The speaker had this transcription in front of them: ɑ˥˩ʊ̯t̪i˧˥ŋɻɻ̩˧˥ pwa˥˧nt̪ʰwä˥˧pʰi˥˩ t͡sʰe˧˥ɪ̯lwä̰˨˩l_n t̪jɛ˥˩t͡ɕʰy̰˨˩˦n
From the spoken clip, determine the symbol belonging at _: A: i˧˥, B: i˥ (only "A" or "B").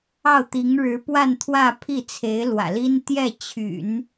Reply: B